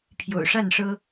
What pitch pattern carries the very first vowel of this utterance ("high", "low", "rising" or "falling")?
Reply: low